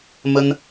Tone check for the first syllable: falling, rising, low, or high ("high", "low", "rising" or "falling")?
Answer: high